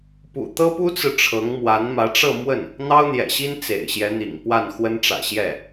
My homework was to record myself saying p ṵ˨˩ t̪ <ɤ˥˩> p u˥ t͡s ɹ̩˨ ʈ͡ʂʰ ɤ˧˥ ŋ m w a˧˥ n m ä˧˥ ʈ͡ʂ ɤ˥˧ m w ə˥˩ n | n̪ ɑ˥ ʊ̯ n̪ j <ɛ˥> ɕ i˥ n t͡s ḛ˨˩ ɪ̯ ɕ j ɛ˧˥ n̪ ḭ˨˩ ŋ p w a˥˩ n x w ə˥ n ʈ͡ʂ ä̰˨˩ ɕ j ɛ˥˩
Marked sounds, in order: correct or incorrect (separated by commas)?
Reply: incorrect, incorrect